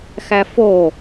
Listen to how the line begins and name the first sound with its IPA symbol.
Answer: x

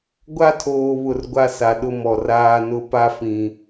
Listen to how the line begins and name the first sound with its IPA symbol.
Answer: ɡʷ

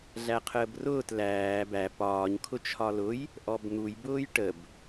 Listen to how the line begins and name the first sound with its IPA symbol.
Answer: ɮ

